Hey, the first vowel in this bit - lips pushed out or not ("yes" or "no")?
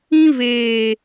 no